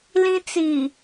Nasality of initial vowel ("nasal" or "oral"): nasal